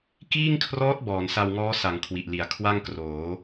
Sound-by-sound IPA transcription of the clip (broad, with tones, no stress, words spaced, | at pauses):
kiː˥˩ŋkʰrɔː˦˥t̚ bɔː˩˦nsa˧wŋɔː˦˥ sa˩˦ŋ kʰwi˨˩ʔli˨˩a̯ kʰwa˥˩ŋkroː˩˦